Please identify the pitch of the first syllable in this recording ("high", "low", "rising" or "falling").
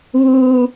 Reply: high